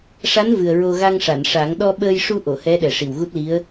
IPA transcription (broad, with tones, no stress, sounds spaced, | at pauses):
ʂ a˧˥ n v ɨ˨˩ ə̯ ɹ o˧ ɣ a˧ ŋ ʂ a˨˩˨ n ʂ a˨˩˦ ŋ ɗ ɔ˧ ɓ əː˧ j ʂ u˧ ʔ o˨˩˨ h ɛ˧˥ ɗ ɛ˨˩ ʂ i˨˩ w ɣ u˦˥ t̚ l i˧˥ ə̯